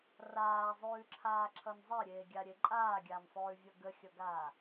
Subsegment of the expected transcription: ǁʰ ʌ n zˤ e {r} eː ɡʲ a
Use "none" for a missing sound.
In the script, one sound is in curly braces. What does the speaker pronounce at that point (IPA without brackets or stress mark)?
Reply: ɾʲ